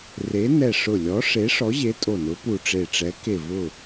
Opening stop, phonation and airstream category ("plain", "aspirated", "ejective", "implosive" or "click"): ejective